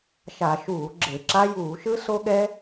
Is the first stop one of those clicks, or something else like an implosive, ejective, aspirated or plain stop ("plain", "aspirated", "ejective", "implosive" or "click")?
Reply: click